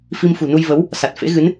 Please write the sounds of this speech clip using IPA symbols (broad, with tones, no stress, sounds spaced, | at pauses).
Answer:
f i˧ m f ṳ˨˩ n u˧ j v ə˨˦ w | s a˨˩ t̚ f ḛ˧˥ ɣ ɨ˨˦ n